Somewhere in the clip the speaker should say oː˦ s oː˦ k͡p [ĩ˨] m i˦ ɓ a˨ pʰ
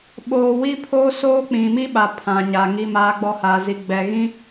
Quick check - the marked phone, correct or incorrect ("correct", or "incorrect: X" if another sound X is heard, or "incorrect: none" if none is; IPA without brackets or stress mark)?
correct